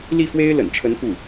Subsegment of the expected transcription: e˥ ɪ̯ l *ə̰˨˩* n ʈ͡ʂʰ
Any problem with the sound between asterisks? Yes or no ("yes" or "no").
no